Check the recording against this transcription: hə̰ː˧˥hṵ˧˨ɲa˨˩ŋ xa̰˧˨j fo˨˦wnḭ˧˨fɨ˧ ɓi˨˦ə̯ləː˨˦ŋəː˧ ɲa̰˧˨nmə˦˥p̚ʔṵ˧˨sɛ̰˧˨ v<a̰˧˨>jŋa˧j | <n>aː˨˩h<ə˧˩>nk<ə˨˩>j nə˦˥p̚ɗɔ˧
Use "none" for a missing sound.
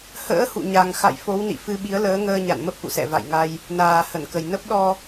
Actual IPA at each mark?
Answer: a̰˧˨, n, ə˧˩, ə˨˩

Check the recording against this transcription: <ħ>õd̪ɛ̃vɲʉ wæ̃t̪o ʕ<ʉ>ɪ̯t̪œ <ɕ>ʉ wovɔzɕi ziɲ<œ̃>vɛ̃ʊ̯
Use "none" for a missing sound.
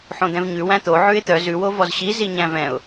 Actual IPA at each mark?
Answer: ħ, ʉ, z, æ̃

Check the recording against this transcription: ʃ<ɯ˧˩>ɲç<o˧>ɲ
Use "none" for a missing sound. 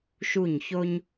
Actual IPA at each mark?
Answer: u˧˩, o˧

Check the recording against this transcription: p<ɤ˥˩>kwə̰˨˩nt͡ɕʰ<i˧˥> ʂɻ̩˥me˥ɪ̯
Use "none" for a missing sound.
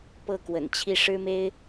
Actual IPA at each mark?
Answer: ɤ˥˩, i˥˩

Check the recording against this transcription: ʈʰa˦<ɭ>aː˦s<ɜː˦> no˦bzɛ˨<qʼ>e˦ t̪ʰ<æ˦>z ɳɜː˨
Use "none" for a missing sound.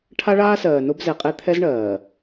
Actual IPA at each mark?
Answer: ɭ, ɜː˨, qʼ, ɛ˦

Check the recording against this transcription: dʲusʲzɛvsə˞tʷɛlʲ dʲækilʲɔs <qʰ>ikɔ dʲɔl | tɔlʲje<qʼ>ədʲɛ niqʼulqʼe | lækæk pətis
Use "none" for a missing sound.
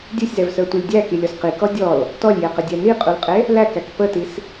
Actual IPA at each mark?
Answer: q, q

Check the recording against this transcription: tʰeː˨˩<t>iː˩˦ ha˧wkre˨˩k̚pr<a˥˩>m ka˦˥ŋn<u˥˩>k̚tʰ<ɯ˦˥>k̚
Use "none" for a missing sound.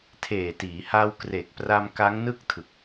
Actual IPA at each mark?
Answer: t, a˧, ɯ˥˩, ɯ˨˩

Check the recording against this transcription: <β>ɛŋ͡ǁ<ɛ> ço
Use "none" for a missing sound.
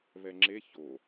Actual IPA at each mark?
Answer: β, e

